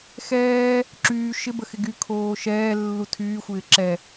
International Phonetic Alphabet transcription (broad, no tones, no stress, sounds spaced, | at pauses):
x ɛː | ǁ yː ʃ ɪ b ə x ɪ ɡ y kʰ oː ʃ ɛː lː u tʰ yː xʷ ɪː ǁ ɛ